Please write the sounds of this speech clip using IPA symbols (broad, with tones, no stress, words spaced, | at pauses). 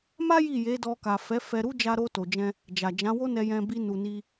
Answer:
ma˦ ji˦˨je˨˦dɔ˧ka˨ fɛ˨˦fɛ˧ɾu˦ d͡ʒa˧ɾo˧to˨d͡ʒɛ̃˧ | d͡ʒa˨d͡ʒã˨˦wo˦ nɛ˧jɛ̃˧bi˧ nu˨ni˧